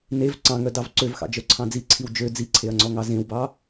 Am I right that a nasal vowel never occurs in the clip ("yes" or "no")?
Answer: no